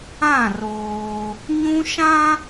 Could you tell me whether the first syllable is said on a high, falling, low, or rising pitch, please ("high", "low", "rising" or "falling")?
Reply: falling